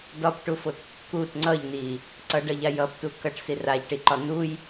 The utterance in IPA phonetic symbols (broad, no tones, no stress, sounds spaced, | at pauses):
d ɒ p ʈ u f o t kː u t ŋ͡ǀ ʌ ʎ n i | ǀ ʌ ɖ ʌ ʎ a j ʌ p t u k ʌ ʈ s i r a ʎ ʈ i ǃ ɒ n u j